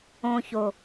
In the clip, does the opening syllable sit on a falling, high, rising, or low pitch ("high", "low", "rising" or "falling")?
low